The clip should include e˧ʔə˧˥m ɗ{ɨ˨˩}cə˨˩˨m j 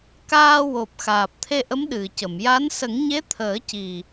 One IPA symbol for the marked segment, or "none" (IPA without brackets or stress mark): ɨ˨˩